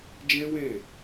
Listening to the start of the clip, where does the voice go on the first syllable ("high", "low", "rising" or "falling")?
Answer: high